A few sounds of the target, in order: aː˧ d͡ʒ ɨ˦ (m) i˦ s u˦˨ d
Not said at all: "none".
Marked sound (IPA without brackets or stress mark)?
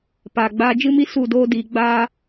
m